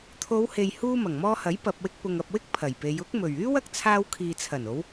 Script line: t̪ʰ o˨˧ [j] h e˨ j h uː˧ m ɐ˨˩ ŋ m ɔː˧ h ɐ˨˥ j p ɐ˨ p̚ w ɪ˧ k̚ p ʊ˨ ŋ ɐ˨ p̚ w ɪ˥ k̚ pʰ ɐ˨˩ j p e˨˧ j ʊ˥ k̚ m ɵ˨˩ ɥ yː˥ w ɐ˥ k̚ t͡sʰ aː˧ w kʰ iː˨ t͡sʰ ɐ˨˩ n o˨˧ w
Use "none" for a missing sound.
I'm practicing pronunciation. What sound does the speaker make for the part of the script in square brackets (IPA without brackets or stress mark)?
w